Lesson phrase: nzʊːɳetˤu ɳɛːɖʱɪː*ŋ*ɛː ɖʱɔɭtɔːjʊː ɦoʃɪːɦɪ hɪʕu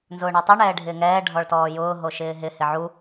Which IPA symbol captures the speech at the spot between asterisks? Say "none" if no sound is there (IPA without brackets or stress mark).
ŋ